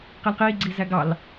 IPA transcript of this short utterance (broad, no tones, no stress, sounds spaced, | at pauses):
q i l q iː ɡ͡ǀ iː z æ ɡ ɑ l